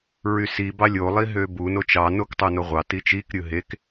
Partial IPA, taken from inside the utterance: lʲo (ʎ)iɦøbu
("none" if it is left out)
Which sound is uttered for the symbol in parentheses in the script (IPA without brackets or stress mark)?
lˠ